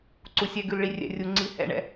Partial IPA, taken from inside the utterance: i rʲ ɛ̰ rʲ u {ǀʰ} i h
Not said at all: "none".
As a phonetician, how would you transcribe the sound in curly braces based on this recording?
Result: ŋ͡ǀ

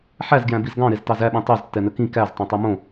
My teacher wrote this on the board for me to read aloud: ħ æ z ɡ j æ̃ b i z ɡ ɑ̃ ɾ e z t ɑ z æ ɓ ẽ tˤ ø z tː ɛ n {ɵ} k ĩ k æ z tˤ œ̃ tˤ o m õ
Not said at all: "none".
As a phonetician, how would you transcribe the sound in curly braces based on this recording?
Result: ɵ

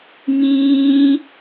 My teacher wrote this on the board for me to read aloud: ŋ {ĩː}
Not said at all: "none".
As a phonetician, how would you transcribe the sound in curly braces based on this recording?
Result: ĩː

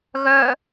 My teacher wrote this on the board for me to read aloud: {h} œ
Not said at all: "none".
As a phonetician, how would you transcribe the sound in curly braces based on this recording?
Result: ɣ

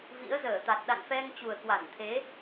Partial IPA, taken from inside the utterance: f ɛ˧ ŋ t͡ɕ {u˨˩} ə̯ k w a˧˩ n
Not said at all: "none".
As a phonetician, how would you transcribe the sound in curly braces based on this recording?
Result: u˨˩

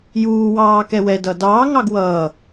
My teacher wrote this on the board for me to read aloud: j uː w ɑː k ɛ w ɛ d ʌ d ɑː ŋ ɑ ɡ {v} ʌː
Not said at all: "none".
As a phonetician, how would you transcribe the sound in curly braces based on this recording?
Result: w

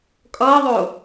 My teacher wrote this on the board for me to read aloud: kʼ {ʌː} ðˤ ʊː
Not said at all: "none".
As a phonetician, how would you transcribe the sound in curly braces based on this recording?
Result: ʌː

